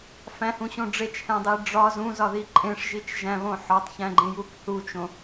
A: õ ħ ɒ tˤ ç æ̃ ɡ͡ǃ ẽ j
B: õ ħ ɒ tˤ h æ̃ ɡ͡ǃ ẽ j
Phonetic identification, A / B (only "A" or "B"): A